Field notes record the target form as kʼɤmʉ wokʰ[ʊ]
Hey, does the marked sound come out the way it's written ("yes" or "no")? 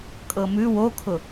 yes